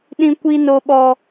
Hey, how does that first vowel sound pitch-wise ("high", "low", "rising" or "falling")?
high